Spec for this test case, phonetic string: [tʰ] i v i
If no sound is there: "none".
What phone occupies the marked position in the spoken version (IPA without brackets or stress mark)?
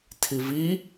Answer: tʰ